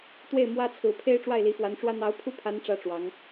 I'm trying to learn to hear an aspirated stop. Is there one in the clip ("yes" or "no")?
yes